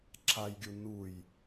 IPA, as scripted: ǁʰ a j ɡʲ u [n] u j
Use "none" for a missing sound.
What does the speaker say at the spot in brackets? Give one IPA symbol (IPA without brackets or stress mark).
n